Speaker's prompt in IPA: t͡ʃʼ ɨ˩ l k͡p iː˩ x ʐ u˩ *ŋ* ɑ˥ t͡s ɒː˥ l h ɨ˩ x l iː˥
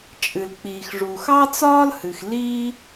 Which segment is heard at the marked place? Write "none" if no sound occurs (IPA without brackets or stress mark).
x